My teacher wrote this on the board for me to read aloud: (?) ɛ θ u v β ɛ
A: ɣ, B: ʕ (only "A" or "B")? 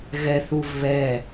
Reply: A